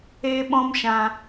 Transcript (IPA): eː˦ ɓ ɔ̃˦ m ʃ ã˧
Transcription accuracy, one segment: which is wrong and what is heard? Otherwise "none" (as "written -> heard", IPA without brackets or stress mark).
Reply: none